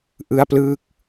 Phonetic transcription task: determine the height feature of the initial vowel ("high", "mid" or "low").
high